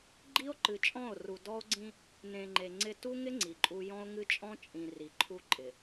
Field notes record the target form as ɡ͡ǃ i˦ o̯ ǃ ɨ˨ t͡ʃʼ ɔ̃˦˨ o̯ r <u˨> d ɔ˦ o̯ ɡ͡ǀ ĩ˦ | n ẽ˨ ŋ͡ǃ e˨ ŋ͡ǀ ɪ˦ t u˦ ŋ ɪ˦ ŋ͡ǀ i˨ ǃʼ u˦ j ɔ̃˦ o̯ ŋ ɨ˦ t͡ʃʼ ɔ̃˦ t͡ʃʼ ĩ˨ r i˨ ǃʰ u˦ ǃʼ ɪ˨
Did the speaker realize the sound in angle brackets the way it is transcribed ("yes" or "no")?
yes